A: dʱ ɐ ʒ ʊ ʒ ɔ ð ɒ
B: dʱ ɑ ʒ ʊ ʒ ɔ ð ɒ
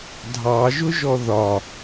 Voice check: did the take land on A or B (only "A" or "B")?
B